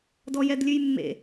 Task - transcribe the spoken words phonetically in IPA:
dɔjɛdlʲʉjmːḛ

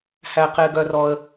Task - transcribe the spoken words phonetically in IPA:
hæ˩qe˩ ɡœ˩rɔ˩ə̯

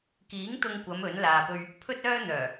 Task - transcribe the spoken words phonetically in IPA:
kiː˨˥ŋ t̪ʊ˧ŋkʷɐ˨˧m ɵ˨˥n laː˨pɵ˧ɥ | pʰɵ˥t̚œː˥n̪œː˨˩

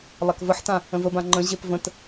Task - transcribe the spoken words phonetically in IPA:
lˠakvəħtã | ə̃vəbã ŋ͡ǃə̃ʑep və̃t

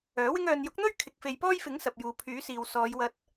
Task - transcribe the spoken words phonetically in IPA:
œː˨˥wɪ˥ŋ œː˨njʊ˨˥k̚n̪ɵ˥ɥ kʰɪ˨k̚fe˨jpɔː˥jfɪ˨˥ŋ sɐ˨p̚juː˨pʰyː˨˥siː˨w sɔː˨˧jwɐ˧t̚

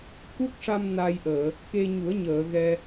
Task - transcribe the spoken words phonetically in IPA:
ku˦˥k̚ʂa˧m na˧jʔəː˨˩˨ | ke˧ɲu˨˩˦ə̯ɲəː˨˩˨ ɣɛ˧

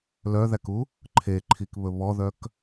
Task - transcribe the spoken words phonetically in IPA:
lœðæku | ǃʰeǃʰikβɵ βɔðœk

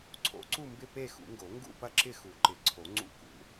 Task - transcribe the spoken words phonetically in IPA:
ǀʰo̰˨˩˦ǀu˦˨mbɪ˦˨ pe˦˨ xṵ˨˩˦ŋɡo˨˩˦ ŋɡṵ˦˨pɐ˦˨ǁɪ˦˨ xu˨˩˦ǃɪ˨˩˦ǀʰo˨˩˦ ŋ͡ǀṵ˦˨kṵ˨˩˦

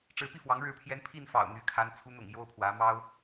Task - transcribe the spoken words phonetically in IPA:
ʈ͡ʂɻ̩˧˥pi˥˩fwɑ˧˥ŋ ɻɻ̩˧˥pʰjɛ˧˥n pʰi˥˩nfɑ̰˨˩ʊ̯ n̪y˧˥kʰa˧˥n t͡sʰu˧˥n̪ʊ̰˨˩ŋ jo˥ʊ̯pʰwä˧˥ mɑ˥ʊ̯

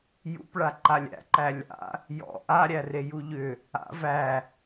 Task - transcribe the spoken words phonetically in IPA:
jṵpɭa ǃalʲæ̰ǃæ lʲa̰ | jɔ̰ ʔaɾʲæ rejuʎʏ | a̰ væ

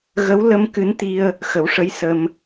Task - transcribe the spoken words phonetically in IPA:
ɣə˧˥w lə˧m kɨ˧˥nt̪i˧ə̯ | xə˨˩˦wʂə˧˥j sə˧m

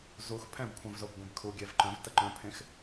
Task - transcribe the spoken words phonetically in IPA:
zux pʰɛ̃bkʷʰœ̃vzob ɡʷẽbkʰu ɡʲɛvǃœ̃v təǃœ̃pʰẽx

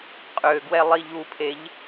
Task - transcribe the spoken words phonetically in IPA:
qʼøɡwɛ lˠiʎupʰeʎ

